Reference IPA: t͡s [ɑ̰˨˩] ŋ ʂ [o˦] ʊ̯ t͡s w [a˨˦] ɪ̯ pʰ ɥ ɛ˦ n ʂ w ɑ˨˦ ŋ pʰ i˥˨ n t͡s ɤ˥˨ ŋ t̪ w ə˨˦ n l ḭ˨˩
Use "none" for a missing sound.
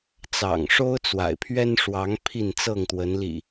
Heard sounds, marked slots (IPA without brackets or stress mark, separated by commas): ɑ̰˨˩, o˦, a̰˨˩